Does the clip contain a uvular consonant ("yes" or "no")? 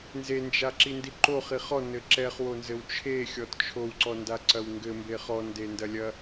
yes